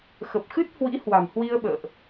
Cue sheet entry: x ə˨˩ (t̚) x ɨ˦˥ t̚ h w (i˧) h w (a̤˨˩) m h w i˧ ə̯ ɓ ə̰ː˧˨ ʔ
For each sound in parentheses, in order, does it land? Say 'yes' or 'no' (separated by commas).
no, no, yes